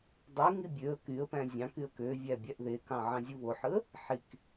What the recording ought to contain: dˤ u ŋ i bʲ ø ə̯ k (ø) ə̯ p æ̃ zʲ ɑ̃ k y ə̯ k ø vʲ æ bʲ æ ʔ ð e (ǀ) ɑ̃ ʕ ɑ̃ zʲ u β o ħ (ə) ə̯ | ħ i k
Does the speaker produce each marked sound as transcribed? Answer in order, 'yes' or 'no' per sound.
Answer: no, no, no

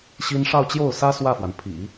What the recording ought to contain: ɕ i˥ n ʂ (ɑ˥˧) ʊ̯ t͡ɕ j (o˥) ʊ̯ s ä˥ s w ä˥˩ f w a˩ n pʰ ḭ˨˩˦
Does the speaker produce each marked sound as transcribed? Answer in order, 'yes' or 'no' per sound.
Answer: yes, no

